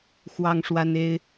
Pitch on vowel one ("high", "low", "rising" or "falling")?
high